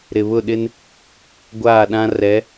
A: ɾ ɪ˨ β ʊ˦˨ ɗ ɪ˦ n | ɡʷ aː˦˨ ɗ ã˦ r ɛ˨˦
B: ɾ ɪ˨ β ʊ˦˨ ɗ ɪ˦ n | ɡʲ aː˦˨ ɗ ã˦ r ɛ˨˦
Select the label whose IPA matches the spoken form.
A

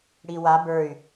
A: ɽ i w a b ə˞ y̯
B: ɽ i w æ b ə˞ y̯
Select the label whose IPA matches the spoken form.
A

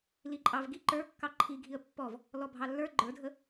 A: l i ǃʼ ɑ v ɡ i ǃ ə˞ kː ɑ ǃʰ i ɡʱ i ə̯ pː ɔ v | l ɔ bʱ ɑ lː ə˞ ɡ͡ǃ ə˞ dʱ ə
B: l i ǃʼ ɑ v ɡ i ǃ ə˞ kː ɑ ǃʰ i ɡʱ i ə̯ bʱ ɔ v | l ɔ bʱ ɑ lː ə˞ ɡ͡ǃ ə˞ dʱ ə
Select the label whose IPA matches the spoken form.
A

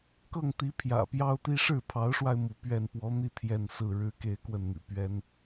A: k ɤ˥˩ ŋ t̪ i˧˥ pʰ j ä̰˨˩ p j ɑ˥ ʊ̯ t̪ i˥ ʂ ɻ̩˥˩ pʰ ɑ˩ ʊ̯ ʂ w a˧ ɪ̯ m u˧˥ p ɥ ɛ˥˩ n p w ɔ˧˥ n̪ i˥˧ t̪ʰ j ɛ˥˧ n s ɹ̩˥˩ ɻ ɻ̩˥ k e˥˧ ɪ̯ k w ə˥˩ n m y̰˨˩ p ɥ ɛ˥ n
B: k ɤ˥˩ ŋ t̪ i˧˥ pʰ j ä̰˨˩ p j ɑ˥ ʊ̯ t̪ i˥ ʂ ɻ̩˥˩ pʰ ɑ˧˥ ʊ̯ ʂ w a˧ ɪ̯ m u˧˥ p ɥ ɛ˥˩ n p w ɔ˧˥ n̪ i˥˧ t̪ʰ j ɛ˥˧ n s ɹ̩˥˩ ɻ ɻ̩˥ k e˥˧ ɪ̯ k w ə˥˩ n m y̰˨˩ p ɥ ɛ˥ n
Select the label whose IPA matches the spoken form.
B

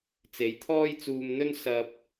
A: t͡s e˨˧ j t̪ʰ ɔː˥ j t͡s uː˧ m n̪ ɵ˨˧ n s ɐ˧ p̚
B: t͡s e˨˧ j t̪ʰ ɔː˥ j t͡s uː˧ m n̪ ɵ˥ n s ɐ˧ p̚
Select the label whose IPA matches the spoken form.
B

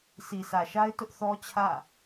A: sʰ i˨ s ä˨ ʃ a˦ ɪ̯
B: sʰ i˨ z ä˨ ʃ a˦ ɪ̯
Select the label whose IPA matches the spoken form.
A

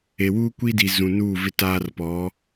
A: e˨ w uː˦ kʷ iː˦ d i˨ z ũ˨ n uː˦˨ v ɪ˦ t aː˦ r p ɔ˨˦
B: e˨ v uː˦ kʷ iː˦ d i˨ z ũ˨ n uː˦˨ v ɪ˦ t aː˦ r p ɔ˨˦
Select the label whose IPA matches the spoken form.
A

